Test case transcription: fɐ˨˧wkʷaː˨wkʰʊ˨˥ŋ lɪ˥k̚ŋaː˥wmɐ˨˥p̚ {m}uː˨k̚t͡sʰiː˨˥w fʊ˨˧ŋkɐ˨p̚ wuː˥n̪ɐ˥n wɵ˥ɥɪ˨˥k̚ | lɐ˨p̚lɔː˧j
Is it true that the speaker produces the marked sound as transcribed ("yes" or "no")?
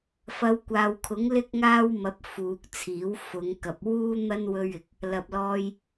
no